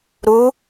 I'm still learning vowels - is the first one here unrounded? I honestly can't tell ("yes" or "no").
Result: no